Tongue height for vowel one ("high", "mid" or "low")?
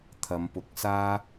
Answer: low